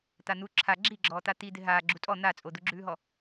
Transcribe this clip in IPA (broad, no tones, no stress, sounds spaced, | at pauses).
t̪ a n̪ u ǁʰ a ɡ͡ǁ i ɡ͡ǁ ɔː t̪ a t̪ i d̪ ɪ ɦ aː ɡ͡ǁ u tʼ ɔ n̪ a t͡sʼ o d̪ u ɡ͡ǁ ʉː ɦ ɔ